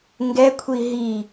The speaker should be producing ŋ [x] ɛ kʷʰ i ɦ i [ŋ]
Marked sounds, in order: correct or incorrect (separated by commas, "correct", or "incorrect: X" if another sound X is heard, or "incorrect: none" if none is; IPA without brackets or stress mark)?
incorrect: ɡ, incorrect: none